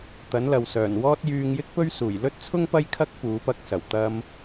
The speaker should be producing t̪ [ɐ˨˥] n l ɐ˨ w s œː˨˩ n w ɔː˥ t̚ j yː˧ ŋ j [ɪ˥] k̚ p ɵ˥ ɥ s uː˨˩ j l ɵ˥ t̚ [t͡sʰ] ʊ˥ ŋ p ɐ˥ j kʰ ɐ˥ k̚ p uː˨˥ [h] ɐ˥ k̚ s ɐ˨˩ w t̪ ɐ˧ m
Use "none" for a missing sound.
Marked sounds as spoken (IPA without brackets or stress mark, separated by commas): ɐ˨˥, ɪ˥, t͡sʰ, p